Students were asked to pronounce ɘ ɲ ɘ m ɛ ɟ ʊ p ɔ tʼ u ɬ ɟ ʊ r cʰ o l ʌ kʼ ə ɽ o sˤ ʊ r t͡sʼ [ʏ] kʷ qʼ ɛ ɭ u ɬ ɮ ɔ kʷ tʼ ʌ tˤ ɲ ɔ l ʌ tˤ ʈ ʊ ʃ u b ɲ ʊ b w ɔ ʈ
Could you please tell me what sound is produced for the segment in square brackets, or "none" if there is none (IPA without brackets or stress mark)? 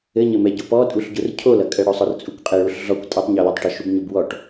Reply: u